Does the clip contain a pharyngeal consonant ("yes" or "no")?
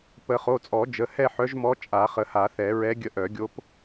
yes